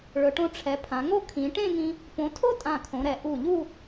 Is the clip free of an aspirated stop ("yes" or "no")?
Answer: no